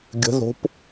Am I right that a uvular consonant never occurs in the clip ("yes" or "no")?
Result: yes